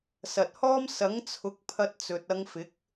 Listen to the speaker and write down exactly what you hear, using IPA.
s ɐ˨ t̚ h ɔː˥ m s ɐ˨˥ ŋ t͡sʰ ʊ˨˥ k̚ pʰ ɐ˧ t̚ t͡s ɵ˨ t̚ ɐ˧ ŋ f ɪ˨˥ k̚

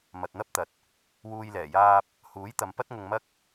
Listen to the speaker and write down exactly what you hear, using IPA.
m ɐ˨ t̚ n̪ ɐ˥ p̚ t̪ ɐ˨ t̚ | w uː˨ j l ɛː˨˩ j aː˧ p̚ | h uː˨˥ j t̪ ɐ˨˧ m p ɐ˥ t̚ ŋ ʊ˧ ŋ m ɐ˥ k̚

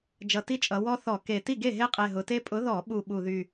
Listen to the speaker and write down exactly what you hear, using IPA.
d͡ʒ ʌ˨˩ t i˦ t͡ʃʼ ʌ˩˧ w ɔ˦ θ ɔ˧˩˧ k e˨˩ t i˥˩ ɡ e˥˩ ɦ e˦ qʼ e˨˩ ɦ ʊ˩˧ t e˦ pʼ ʊ˨˥ ð ɔ˧˩˧ ɓ u˨˩ ɓ u˨˩ ð y˨˩

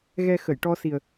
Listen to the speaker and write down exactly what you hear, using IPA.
ɣ ɛ˧ x ə˨˩˨ j ʈ ɔ˧ s i˨˩ ə̯

